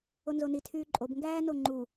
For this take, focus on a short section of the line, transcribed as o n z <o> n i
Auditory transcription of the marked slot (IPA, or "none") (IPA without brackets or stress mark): o